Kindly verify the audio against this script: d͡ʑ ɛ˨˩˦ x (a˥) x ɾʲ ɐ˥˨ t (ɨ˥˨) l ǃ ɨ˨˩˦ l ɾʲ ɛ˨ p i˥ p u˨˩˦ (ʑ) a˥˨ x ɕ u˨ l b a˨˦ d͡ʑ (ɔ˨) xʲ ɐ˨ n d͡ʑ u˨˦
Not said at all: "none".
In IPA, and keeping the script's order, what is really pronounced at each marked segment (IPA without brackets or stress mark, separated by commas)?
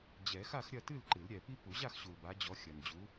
a˥˨, ɨ˥˨, ʑ, ɔ˨˦